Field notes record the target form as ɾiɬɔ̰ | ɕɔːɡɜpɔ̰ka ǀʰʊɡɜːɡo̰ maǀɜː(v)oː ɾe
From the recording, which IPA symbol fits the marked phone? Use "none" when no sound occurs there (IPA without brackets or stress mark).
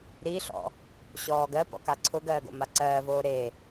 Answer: v